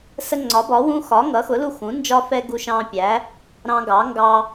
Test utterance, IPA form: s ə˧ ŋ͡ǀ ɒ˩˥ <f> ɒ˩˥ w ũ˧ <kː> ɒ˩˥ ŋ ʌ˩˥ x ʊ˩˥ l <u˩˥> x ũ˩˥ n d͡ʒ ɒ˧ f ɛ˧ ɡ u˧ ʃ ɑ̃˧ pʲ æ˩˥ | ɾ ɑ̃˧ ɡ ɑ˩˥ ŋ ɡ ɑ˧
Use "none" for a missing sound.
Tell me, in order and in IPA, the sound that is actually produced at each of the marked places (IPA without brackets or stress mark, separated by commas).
b, x, u˧